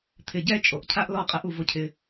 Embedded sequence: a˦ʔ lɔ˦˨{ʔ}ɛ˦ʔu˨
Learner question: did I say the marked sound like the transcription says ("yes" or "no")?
no